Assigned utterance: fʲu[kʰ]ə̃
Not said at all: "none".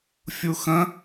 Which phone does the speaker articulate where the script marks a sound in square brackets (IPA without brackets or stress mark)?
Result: x